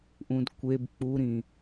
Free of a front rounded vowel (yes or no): yes